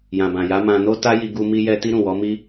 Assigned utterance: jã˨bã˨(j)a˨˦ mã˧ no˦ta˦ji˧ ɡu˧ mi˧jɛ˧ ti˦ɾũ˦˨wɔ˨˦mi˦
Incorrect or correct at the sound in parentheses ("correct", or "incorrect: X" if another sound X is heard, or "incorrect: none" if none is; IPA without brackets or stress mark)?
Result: correct